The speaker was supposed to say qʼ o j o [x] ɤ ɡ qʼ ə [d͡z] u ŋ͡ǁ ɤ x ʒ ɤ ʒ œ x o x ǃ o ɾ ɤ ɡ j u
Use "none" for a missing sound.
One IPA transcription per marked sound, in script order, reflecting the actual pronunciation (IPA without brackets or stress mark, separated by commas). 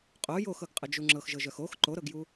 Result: x, d͡ʒ